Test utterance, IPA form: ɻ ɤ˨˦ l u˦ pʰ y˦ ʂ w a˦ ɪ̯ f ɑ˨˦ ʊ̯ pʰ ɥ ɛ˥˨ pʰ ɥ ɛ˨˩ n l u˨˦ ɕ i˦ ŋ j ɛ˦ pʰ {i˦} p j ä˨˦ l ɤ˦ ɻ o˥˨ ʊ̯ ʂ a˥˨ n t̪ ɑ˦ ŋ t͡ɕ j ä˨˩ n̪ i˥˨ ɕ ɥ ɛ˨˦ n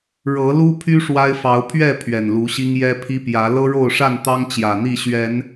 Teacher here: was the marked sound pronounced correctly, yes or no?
yes